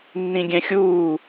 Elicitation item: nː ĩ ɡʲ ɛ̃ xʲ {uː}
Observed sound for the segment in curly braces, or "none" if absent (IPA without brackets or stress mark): uː